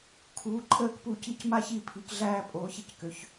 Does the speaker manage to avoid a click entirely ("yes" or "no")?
no